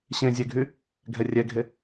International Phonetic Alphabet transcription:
ɕ ẽ zʲ ɛ ɡʱ y | ɡʱ ɛ rʲ ɛ ɡʱ e

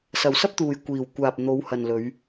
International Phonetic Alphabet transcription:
s ɐ˨ w s ɐ˥ p̚ t̪ uː˨ j kʷ iː˨˩ w kʷ aː˨ p̚ n̪ o˨˧ w h ɐ˨ n l ɵ˨˧ ɥ

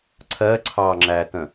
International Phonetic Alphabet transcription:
ǀʰ ɜ ǀʰ ɑ ŋ͡ǁ æ t ə̃

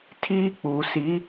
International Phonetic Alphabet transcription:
tʰ iː˦ k͡p uː˨ s i˨˦

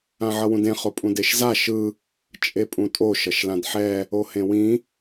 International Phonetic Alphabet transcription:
ã ʕ ʌ w ũ d ẽ χ o pʼ ũ d e ʃ z a ʃ ɯ | t͡ʃʼ e pʼ ũ tʼ o ʃ ʌ ʃ l ã d ħ ɛ | o h ẽ w ĩ

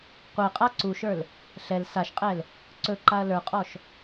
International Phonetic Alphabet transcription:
qʷ ɛ qʼ a ǀ u ʃ ə˞ l | ɬ ɛ l s a ʃ qʼ ɛ l | ǀ ɵ ǃ a ɐ̯ l ə˞ qʼ ɔ ʃ

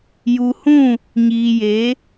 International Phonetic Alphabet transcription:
j u˨ h ũ˦˨ | ɲ iː˨ j e˨˦

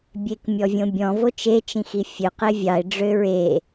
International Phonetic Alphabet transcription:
bʲ e k mʲ ɔ vʲ õ bʲ ɔ̃ v o t͡ʃ e t͡ʃ ĩ x i fʲ ø q e vʲ ɑ ɪ̯ ɖ͡ʐ ø ɹ e

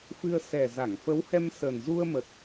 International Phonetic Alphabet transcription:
f ɨ˧ ə̯ s ɛ˨˩ z a˧˩ ŋ f ə˨˦ w h ɛ˧ m s ə˨˩ n z u˧ ə̯ m ə˨˩ t̚

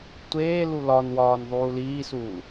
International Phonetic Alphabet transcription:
tʷ eː l u l ɒ n w ɒː n ðˤ uː l iː s uː

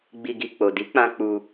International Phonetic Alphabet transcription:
ɡ͡b i˨ ɡ i˨ k͡p o˨ d i˨˦ k͡p ã˧ k͡p u˧

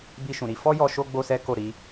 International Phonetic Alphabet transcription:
b i˧ ʃ ũ˨ ɾ i˨˦ f ɔ˦ j ɔ˧ ʃ o˦ ɡ͡b o˦ s ɛ˦ k o˦˨ ɾ i˨˦

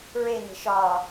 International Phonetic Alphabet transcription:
ɹ e n̪ e̤ ʃ ɒ

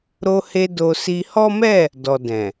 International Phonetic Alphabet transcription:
ɾ o˧ h e˧ d o˧ s i˧ h ɔ˦ m ɛ˦˨ | d ɔ˨ d ɛ̃˨

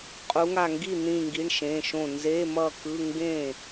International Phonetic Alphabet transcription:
qʼ u˩˧ ŋ a˧˩ ŋ ɡ i˥˩ n̪ ĩ˧˩ ŋ ɡ i˩˧˩ ɳ ʃ ẽ˩˧˩ ʃ õ˧˩ n z e˧˥˧ m ʌ˥˩ k ɯ˧˥˧ ŋ ɡ ẽ˥˩

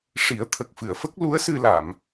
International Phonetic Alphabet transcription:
ʂ i˨˩˦ ə̯ t̪ʰ ə˨˩ k̚ f ɨ˨˩˨ ə̯ f ə˦˥ k̚ l u˧˥ ə̯ s ɨ˧ l a˨˩˨ m

